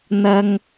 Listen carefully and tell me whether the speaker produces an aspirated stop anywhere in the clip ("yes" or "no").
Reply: no